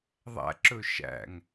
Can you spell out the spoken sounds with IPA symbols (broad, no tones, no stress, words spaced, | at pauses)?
ðˤæ̰ǁɵ ʃæ̰ŋ